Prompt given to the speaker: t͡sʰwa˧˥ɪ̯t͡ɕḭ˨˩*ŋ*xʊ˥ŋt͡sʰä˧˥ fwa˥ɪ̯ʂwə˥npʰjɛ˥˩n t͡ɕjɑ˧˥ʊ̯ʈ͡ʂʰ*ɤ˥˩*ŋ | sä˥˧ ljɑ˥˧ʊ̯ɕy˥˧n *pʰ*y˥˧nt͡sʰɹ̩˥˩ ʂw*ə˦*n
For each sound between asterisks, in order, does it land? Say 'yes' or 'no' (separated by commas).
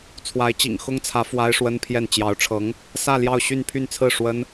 yes, no, yes, no